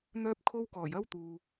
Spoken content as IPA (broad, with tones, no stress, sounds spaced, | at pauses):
n̪ œː˥ p̚ kʰ o˥ w k ɔː˨˩ j ɐ˥ w t̪ uː˨